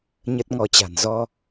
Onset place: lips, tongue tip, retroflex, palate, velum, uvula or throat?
palate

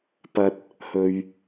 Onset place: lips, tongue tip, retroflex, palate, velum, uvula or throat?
lips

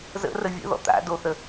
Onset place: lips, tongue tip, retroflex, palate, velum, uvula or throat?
tongue tip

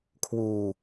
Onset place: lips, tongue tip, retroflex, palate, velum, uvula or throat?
velum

